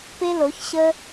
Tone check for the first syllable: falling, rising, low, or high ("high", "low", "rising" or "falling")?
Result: high